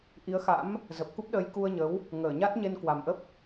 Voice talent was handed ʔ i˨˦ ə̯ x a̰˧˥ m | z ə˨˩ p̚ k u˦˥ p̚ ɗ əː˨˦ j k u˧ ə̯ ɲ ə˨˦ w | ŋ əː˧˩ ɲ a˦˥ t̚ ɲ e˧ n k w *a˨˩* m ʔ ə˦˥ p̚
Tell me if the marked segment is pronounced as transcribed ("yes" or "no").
yes